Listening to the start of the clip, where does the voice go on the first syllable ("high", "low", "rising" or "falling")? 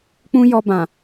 high